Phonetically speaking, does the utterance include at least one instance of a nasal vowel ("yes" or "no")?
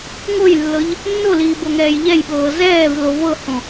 yes